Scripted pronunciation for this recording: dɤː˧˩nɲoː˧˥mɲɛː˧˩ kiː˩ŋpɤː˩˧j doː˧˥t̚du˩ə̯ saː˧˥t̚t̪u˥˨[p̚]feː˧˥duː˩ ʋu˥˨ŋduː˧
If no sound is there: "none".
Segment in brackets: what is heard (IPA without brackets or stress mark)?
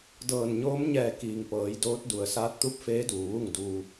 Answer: p̚